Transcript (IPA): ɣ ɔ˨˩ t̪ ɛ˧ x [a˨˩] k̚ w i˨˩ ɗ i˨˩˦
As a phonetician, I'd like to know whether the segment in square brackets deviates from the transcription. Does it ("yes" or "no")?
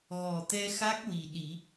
yes